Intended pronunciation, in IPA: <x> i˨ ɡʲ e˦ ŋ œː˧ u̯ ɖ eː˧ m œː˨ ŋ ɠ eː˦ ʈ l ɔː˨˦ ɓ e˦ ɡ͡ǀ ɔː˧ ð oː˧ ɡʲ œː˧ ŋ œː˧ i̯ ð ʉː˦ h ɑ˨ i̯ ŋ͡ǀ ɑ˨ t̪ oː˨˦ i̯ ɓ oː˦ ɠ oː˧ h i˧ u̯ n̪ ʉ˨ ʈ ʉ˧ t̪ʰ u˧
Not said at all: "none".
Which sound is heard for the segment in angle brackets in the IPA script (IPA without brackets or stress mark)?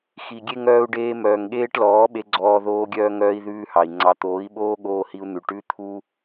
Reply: x